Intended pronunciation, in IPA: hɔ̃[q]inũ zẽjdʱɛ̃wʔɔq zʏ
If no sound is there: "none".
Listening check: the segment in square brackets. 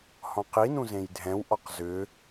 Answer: q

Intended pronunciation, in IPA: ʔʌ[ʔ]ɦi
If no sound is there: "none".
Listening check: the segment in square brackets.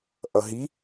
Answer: none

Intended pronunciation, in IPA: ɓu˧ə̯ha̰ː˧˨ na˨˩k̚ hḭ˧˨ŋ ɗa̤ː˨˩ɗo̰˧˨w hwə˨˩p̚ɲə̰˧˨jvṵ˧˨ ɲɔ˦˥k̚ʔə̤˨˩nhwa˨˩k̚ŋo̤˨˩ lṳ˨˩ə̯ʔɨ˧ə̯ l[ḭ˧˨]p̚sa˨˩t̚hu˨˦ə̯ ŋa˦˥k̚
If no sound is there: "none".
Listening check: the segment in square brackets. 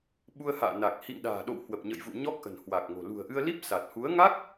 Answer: i˦˥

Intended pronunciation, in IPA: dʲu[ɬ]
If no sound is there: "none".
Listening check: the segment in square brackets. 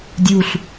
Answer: ɬ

